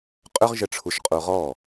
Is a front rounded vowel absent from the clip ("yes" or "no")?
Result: no